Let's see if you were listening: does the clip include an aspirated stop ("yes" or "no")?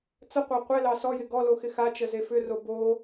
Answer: no